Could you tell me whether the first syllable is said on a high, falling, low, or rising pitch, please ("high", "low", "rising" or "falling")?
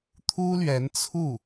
high